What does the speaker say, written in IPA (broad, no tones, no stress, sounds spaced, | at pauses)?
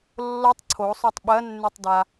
lː o tˤ ǀʰ o sˤ œ tˤ ɓ ɜ nː ʉ tˤ d a